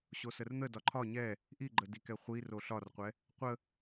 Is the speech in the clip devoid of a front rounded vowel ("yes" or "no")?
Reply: yes